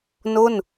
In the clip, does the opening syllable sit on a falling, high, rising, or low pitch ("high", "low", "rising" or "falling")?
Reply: falling